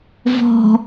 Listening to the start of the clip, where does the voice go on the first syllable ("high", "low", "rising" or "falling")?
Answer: low